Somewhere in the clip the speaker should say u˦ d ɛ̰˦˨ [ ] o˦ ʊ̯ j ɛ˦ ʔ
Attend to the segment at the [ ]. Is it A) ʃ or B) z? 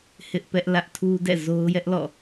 B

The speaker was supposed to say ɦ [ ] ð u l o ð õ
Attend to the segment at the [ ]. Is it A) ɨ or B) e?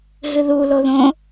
A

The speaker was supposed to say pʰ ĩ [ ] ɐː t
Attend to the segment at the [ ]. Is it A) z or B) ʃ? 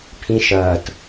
B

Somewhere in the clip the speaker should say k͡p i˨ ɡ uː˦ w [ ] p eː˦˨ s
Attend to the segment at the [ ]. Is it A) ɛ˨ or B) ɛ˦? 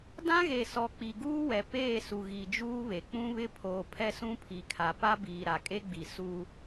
A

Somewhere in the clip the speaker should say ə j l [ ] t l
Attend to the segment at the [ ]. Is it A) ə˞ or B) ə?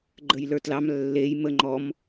A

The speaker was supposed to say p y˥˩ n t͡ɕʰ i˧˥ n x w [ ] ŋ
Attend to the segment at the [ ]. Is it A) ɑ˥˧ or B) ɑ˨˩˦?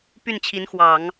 B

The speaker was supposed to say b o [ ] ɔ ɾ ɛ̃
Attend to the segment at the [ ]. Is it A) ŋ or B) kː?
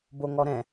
A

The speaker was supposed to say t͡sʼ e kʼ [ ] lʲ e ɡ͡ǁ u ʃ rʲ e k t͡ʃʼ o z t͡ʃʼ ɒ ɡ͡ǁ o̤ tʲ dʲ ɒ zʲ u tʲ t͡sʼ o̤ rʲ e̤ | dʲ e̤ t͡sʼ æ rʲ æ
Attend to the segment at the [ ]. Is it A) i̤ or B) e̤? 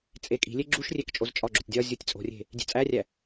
A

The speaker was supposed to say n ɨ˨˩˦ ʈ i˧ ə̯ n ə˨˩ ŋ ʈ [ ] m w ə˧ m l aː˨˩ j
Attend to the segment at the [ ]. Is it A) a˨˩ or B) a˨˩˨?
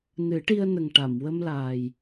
B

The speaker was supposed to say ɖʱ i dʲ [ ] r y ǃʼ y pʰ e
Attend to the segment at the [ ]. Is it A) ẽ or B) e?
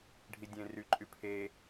A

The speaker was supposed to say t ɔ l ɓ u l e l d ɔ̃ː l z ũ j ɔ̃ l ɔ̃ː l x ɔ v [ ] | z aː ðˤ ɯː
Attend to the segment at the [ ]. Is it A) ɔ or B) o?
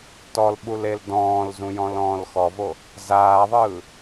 B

